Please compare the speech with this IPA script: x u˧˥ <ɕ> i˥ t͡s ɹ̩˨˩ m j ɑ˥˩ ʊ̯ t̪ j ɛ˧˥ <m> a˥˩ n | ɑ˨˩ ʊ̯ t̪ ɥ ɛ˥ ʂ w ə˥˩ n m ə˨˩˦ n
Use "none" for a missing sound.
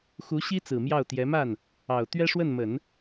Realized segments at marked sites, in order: ɕ, m

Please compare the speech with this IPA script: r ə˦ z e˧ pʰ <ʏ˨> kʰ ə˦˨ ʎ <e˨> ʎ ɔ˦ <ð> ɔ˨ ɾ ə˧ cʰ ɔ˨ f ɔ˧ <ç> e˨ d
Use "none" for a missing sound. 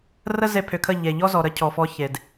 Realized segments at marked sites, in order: ʏ˨, e˨, z, ç

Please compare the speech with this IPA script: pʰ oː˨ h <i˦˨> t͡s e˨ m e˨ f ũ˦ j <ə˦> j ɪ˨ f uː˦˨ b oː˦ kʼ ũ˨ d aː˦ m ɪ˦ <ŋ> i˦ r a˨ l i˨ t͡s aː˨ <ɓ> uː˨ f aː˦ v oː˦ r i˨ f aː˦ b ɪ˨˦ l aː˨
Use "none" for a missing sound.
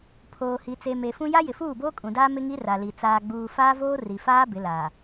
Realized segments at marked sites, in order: i˨, a˦, ŋ, ɡ͡b

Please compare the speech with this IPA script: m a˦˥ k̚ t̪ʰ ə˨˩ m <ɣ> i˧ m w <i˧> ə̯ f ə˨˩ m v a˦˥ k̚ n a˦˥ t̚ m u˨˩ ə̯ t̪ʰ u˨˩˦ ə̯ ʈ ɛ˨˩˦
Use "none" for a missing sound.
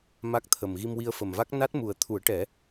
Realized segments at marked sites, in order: ɣ, i˧

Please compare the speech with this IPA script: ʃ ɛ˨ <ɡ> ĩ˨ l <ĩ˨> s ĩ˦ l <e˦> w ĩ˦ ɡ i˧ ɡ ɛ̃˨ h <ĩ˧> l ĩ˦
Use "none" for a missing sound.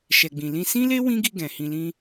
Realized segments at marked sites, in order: ɡ͡b, ĩ˧, e˦, ĩ˧

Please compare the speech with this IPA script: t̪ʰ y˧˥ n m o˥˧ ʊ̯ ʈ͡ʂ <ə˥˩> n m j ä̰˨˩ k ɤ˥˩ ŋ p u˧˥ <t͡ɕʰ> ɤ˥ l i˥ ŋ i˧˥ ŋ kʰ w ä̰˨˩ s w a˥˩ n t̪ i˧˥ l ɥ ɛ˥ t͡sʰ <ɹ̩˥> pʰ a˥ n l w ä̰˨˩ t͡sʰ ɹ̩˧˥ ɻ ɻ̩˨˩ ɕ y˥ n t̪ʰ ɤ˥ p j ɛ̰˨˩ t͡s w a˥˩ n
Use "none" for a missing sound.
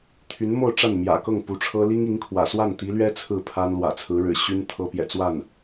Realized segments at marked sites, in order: a˥˩, ʈ͡ʂʰ, ɹ̩˥˩

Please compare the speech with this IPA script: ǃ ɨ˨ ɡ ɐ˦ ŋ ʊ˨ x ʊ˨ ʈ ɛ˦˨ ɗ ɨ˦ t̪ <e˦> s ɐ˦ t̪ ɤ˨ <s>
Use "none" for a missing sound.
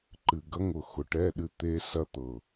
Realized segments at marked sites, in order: e˦, none

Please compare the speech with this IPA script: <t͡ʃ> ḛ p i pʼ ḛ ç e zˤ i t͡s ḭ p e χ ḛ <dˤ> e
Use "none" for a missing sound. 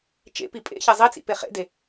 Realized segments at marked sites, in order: t͡ʃ, d

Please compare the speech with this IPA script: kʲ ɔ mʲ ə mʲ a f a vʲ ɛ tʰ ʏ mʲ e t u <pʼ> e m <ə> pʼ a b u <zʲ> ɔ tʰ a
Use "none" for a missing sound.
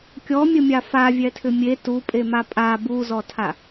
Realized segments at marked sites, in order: pʼ, a, z

